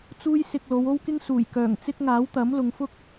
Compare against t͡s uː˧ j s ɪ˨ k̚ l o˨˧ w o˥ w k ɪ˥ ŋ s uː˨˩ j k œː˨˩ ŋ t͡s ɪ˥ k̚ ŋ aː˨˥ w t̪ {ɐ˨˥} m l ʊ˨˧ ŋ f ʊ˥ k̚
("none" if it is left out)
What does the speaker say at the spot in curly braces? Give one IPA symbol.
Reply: ɐ˨˥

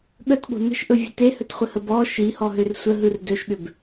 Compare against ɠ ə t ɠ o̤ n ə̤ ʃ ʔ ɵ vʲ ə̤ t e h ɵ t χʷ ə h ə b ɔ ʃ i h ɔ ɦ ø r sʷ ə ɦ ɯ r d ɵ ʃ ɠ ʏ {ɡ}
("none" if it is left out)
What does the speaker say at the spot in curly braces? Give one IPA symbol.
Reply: b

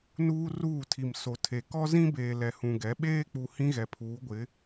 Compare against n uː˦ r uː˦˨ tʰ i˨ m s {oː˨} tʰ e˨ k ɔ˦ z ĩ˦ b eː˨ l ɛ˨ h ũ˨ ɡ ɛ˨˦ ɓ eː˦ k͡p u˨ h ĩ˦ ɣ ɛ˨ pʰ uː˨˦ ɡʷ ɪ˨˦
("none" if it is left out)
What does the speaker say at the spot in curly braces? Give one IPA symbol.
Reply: o˨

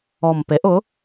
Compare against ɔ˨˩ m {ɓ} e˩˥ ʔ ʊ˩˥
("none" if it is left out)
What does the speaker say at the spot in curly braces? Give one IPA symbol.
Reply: p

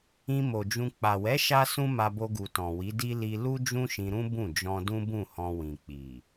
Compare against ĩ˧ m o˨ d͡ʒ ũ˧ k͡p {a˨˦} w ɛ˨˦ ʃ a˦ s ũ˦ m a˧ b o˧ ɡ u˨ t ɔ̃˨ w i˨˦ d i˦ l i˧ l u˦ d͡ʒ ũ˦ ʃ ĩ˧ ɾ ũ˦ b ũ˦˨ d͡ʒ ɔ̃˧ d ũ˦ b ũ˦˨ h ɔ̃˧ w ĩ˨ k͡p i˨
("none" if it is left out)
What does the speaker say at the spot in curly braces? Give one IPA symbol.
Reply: a˨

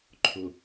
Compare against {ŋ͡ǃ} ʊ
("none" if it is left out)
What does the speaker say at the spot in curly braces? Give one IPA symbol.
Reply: ǃʰ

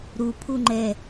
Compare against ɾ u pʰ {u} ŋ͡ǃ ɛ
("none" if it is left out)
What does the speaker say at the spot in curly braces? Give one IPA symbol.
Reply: u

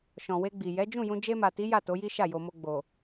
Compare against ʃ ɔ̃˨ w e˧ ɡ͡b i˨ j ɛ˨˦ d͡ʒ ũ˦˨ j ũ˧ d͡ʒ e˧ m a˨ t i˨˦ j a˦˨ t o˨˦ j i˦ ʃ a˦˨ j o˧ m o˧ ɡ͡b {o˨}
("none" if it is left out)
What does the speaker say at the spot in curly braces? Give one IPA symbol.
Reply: o˨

